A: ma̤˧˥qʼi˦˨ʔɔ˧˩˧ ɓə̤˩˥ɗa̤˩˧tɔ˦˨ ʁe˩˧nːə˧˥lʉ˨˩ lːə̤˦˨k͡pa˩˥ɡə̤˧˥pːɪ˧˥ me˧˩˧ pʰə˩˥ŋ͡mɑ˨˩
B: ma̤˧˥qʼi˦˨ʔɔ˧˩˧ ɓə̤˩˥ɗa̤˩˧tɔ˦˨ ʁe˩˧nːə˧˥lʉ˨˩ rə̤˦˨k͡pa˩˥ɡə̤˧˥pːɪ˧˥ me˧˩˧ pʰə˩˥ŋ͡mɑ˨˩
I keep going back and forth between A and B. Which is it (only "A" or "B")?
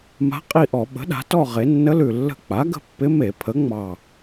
A